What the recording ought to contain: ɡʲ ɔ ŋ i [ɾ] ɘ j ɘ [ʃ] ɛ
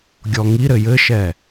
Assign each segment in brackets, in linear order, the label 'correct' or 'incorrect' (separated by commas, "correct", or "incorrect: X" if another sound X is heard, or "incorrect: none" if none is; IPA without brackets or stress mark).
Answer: correct, correct